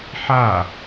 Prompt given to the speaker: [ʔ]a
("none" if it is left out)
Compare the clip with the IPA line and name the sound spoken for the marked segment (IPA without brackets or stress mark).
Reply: ħ